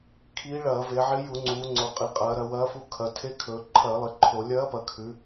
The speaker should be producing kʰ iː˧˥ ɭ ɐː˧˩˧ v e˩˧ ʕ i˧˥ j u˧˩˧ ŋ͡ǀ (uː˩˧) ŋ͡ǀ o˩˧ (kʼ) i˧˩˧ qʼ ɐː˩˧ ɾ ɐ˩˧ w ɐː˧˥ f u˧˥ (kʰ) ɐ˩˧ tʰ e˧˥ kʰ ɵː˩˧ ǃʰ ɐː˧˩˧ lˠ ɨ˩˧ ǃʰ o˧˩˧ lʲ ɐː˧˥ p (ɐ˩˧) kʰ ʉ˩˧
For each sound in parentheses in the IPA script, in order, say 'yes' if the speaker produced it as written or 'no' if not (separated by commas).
yes, no, yes, yes